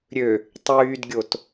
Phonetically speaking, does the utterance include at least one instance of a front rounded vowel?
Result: yes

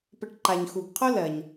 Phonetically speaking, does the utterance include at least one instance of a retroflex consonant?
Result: yes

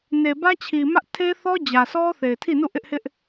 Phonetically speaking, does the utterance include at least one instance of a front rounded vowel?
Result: no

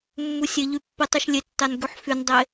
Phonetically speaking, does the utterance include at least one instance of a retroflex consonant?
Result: no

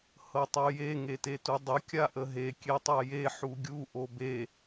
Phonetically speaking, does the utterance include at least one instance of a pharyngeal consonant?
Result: yes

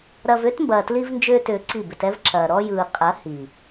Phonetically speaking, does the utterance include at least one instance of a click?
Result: yes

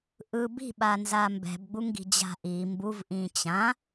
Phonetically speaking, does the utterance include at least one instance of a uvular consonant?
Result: no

